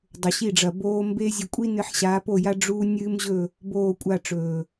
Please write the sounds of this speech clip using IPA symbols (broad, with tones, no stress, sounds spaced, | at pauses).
dˤ ɵ˨ ɕ i˦˨ ɖ͡ʐ ɐ˨ b oː˧ m b e˦ zʲ ɨ˨ kʷʼ i˦ n ɨ˧ ħ ɕ aː˨˦ p o˦˨ j a˦ ɖ͡ʐ u˦ nʲ ɨː˦ m ʑ ɵ˦˨ | b oː˦˨ kʷʼ a˦˨ ʈ͡ʂ ɵː˨